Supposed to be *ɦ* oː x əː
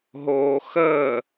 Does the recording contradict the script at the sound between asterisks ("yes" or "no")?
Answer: no